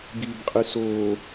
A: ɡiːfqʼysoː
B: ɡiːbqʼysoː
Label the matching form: B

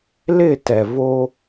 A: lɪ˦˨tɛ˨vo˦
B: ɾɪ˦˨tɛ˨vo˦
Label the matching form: A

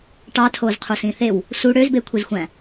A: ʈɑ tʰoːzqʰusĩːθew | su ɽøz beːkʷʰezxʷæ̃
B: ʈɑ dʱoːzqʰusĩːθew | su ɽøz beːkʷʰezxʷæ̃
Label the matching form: A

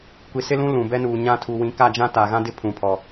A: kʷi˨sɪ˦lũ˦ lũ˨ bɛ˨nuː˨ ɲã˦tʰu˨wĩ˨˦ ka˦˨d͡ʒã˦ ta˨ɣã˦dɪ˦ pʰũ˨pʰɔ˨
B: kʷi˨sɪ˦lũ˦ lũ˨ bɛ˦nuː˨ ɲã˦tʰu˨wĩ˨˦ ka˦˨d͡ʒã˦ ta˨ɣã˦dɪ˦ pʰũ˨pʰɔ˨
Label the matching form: B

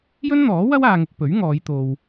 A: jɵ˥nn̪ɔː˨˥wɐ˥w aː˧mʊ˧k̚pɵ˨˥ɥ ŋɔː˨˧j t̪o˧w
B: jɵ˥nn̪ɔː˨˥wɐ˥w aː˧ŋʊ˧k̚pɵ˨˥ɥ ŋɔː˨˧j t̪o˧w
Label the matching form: B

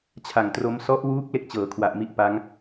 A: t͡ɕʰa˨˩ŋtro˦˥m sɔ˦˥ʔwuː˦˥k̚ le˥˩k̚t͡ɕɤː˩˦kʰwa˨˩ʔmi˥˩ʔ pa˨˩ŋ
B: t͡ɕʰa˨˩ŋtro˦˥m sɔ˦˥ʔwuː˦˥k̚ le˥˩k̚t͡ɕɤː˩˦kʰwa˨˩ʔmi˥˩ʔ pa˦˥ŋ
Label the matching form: B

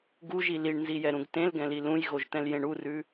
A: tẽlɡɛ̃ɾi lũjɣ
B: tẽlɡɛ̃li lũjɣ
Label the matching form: B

